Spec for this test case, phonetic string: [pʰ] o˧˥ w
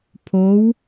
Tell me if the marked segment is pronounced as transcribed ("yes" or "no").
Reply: yes